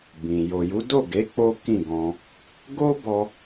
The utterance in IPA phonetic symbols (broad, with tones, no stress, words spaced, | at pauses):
bĩ˨ jo˨ju˨˦do˦˨ɡe˨˦ k͡po˦kĩ˦˨ɡɔ̃˧ | ɡo˦bɔ˧